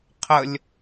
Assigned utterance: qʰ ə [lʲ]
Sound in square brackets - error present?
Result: no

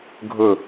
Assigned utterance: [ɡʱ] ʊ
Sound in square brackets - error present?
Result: no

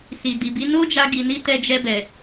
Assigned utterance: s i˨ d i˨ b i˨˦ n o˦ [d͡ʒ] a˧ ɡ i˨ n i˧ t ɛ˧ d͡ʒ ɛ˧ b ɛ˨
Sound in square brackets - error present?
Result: no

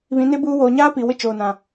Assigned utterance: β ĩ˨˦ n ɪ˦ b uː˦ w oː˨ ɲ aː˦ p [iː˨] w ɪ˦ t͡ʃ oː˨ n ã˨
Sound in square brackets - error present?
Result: yes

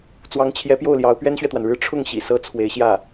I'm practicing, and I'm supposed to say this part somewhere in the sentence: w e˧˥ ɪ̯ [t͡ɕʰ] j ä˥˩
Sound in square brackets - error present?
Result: yes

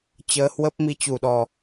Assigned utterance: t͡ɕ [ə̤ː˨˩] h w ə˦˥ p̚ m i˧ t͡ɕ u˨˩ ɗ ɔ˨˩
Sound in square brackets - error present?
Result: yes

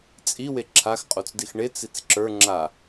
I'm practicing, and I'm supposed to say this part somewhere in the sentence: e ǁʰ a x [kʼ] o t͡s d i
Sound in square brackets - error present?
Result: yes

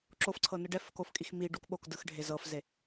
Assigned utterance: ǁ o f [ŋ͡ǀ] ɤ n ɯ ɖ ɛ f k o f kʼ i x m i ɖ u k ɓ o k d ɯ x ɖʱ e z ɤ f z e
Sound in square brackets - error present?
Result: yes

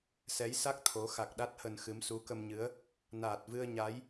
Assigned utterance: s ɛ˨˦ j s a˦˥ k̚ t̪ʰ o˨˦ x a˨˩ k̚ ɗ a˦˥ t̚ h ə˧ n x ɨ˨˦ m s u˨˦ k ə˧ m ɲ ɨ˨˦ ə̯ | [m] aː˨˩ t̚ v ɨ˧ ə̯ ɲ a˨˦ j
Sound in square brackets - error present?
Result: yes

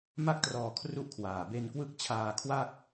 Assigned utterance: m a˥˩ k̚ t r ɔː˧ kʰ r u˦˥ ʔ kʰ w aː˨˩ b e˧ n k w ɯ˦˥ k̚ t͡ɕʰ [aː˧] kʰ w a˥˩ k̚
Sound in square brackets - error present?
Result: no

